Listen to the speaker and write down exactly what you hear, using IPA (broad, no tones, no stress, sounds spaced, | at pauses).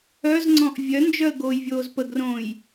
œ z ŋ͡ǀ ɔ̃ ʔ vʲ œ n d͡ʒ œ ə̯ ɡ oː j vʲ oː z p ə ɡ r õː j